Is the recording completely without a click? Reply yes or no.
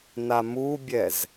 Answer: yes